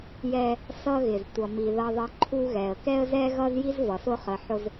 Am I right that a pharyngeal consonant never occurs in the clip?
no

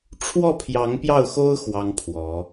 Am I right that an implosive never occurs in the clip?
yes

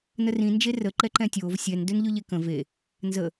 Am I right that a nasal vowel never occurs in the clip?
no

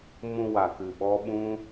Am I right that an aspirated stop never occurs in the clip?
yes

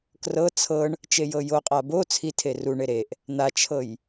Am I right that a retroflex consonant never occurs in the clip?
no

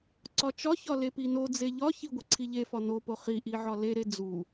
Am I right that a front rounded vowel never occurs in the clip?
yes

